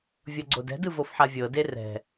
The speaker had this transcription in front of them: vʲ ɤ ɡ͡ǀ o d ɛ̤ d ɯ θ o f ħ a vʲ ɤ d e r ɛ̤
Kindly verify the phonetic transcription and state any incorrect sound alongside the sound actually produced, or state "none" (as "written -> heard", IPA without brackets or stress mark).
θ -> v